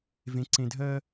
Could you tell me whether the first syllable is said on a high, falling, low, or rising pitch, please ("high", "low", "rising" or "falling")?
low